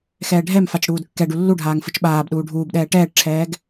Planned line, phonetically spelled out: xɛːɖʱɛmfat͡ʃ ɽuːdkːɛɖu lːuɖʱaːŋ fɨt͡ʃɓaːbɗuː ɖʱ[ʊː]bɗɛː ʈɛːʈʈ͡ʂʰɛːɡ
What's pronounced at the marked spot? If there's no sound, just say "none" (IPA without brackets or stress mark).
uː